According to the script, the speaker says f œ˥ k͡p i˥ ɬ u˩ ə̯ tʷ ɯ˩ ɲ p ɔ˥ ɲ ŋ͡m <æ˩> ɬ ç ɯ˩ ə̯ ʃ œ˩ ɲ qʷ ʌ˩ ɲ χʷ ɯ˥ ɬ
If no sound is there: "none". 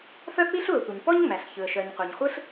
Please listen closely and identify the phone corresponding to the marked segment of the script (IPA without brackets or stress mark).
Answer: æ˩